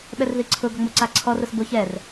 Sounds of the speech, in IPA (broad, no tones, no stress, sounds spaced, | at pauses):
ɓ ɛ r ð i ǀʰ ʊ ɡ ɔ ŋ͡m o ǀ a ǀʰ ɔ r ʊ s b o ç ɛ r